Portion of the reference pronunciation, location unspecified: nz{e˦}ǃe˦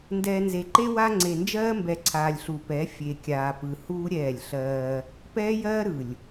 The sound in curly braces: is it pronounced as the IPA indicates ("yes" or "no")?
no